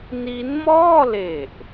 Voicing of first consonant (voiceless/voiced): voiced